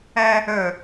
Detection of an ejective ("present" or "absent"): absent